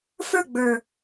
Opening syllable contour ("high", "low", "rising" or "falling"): falling